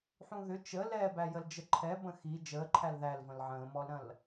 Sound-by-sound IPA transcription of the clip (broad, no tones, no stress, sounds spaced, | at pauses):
ħ ũ ð ʏ t͡ʃ ə l ɛː b æ j ə l d͡ʒ ə ǃʰ ɛ b ə̃ x i d͡ʒ əː ǃʰ æ l ð æ l v ə̃ l ʕ ə̃ː m ɔ l ɾ ɐ̃ l